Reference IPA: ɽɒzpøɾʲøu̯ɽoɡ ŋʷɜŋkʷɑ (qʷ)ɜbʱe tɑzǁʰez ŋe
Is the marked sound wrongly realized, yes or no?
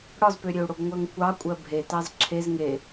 yes